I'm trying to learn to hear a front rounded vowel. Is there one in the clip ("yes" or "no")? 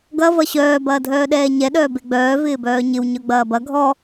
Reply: yes